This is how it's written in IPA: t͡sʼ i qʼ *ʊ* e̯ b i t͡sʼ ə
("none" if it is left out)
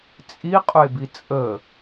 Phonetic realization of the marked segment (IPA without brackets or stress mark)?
ʊ